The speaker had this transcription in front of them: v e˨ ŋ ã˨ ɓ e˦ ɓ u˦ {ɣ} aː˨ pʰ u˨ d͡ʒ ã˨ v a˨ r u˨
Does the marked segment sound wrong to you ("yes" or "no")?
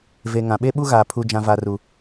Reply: no